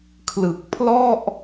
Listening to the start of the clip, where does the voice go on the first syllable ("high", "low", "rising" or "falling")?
low